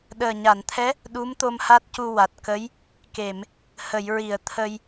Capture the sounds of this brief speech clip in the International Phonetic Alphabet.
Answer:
ɗ əː˨˩ ɲ a˨˩˨ n t̪ʰ ɛ˧˥ | ɗ u˧˥ m t̪ o˧ m h a˦˥ t̚ c u˧ w a˨˩ t̚ k ə˧˥ j | k e˨˩˨ m | h ə˨˩˨ j ɹ i˨˩˨ ə̯ t̪ʰ ə˧ j

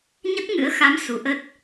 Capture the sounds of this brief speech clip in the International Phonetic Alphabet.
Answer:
ɲ ə˦˥ t̚ ŋ ɨ̰˧˥ ə̯ x a˨˦ m s u˨˦ ʔ ə˦˥ t̚

